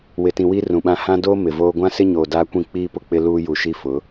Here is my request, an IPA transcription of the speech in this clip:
w ɪ˨ t ĩ˨ w i˦ r ũ˨ ɓ ã˦ h ã˦ d oː˦ m ɪ˨ v oː˦ ɡʷ ã˦ s ɪ˦ ɲ oː˨ d aː˦ kʷ ĩ˦˨ k͡p iː˦ p ʊ˦ k͡p ɪ˦ l uː˦ j u˨ ʃ i˦ f ʊ˨˦

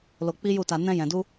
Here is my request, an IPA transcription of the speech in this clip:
l o˧ k͡p i˦ j u˦˨ t a˧ n ɛ̃˧ j ɛ̃˨ d u˧

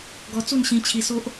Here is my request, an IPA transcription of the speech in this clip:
ɡ ɔ˧ t͡s u˥˧ n ɕ ĩ˧ t͡ɕʰ i˧ s o˦ ʔ

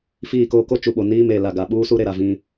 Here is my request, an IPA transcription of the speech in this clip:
f iː˦˨ k oː˦ k o˦ t͡ʃ u˨ ɓ o˨ n iː˦ m e˨ l a˨ ɡ a˨ ɓ uː˦ s u˦ ɾ e˨ ɾ a˨ v ĩ˦

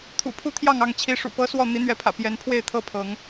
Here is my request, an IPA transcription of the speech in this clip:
t̪ʰ ṵ˨˩ pʰ u˥˨ t̪ʰ j ɑ˥˨ ŋ ɑ˥˨ ŋ t͡ɕʰ i˨˦ ʂ ṵ˨˩ p ɤ˦ s w ɔ˥˨ n̪ i˨˦ n̪ ɥ ɛ˨˦ pʰ ä̰˨˩ p j ɛ˨˦ n pʰ w e˥˨ ɪ̯ t̪ʰ ɤ˥˨ pʰ ɤ˨˦ ŋ

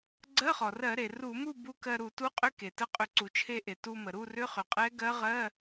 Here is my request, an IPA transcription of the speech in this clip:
ɡ͡ǀ ɜ˧˥˧ χ ɔ˩ r ɜ˧˩˧ ɾ e˩ r u˧˩˧ m u˥˨ b u˧˥˧ k ɜ˧ ɾ u˧˩˧ t u˧˥˧ qʼ ʏ˧˥˧ k e˩ t ə˧˥ qʼ ʏ˧˩˧ ǀ u˩ t͡ʃʰ e˧ ʔ e˩ t u˧ m ə˩ ɾ u˥˨ r ʏ˧˥˧ χ ʏ˩ qʼ ɛ˧˥ ɡ ɜ˧˥ ʁ ɜ˧˥˧

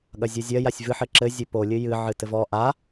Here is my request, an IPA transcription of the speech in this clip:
ɠ ɐ zʲ u zʲ ɐ j a sʲ v ɨ ħ ɘ ǁ ɘ zʲ ɘ p o lʲ ɨ j ɨ ʕ ɨ t ɘ v ɔ ʔ a

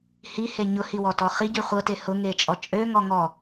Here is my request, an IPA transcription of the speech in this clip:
h i h e ɲ ʊ h i w ɔ t ɔ χ i ɟ y χʷ ɤ t e h ʊ ŋ e t͡ʃʼ ɔ t͡ʃʼ ø ŋ ɔ ŋ ɔ

